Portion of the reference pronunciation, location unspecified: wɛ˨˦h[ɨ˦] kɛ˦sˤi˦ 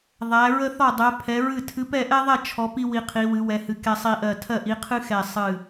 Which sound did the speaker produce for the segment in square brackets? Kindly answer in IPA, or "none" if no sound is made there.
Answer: ɨ˨˦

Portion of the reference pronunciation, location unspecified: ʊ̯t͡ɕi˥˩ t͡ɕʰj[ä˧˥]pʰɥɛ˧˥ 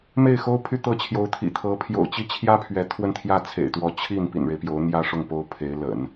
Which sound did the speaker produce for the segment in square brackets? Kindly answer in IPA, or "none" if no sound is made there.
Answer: ä˥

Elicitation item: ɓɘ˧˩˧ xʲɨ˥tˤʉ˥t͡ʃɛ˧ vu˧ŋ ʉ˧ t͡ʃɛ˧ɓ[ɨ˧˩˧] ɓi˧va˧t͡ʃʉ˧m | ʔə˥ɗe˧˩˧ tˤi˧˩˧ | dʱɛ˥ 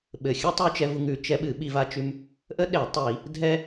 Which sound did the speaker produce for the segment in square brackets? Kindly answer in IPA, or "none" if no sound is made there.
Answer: ɨ˧˩˧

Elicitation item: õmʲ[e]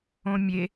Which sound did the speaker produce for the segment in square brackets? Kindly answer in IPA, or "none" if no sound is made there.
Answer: e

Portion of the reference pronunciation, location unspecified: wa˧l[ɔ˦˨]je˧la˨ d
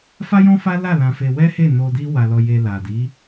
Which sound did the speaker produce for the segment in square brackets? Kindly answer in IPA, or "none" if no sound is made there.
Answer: ɔ˧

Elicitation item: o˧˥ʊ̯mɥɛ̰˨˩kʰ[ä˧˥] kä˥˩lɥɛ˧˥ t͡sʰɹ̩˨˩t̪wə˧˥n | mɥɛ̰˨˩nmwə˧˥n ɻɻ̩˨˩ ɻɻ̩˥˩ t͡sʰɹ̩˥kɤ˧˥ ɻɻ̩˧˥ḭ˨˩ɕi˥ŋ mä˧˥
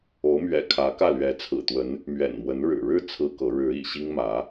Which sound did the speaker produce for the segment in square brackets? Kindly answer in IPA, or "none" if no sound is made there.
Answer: ä˧˥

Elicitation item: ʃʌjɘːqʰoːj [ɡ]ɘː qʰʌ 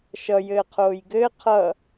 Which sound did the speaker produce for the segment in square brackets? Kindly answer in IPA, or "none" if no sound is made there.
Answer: ɡ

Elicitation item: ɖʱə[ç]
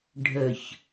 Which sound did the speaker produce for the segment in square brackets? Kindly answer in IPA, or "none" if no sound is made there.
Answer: ç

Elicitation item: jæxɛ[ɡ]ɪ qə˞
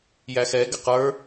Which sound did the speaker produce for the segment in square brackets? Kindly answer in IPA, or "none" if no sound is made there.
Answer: ɡ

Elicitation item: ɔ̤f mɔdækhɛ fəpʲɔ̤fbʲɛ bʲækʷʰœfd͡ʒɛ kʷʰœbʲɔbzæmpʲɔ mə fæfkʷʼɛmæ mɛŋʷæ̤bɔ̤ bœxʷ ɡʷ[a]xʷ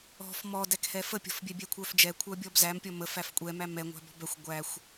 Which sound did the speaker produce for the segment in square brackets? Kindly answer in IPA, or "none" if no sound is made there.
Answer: æ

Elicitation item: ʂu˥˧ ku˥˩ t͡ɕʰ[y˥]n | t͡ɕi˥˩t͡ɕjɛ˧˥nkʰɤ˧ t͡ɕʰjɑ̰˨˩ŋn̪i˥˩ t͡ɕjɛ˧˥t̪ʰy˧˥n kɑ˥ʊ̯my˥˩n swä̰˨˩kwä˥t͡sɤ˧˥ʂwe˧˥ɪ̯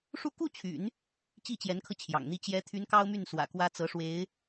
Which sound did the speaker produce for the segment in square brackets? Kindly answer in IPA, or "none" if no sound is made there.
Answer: y̰˨˩˦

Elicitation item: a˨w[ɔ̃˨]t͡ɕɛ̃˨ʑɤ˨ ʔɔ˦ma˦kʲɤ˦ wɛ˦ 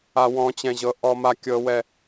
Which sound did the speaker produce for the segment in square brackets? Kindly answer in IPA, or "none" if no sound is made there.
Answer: ɔ̃˨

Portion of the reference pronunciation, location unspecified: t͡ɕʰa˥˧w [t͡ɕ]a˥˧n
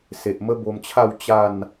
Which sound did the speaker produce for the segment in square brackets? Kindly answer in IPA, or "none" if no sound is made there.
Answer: t͡ɕ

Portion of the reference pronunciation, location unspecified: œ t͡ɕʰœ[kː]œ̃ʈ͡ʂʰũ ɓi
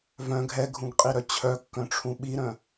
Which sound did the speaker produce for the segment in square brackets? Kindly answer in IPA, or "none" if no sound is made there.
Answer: kː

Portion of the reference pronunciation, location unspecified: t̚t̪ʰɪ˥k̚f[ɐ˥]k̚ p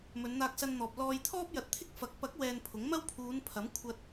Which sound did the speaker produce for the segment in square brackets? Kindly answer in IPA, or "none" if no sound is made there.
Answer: ɐ˨˥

